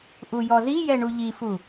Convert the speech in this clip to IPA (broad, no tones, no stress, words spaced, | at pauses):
ʔujɔzijɛ ɳuʎifu